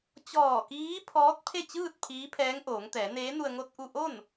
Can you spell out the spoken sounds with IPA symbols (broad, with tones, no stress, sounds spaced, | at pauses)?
t͡ɕ ɔː˧˩ k iː˧˥ pʰ ɔː˧˥ t̚ pʰ e˥˨ t͡ɕ ɯː˥˨ t̚ pʰ iː˧˥ pʰ ɛː˧˥ ŋ ʔ oː˩˧ ŋ t̪ ɛː˩˧ n eː˧˥ n u˧ ə̯ ŋ o˧ t̚ ʔ u˧ ʔ o˥˨ n